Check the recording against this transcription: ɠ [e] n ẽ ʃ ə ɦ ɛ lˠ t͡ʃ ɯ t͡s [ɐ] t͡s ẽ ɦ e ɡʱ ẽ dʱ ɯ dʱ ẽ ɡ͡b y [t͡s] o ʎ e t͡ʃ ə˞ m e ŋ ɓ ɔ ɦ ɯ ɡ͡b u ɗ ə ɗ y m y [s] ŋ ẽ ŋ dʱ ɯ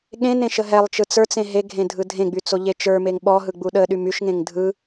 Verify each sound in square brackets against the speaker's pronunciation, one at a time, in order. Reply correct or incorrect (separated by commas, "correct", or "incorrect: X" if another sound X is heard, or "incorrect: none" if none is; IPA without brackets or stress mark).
incorrect: ẽ, incorrect: ə˞, correct, incorrect: ʃ